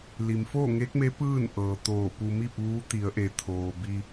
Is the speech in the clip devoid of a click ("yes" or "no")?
yes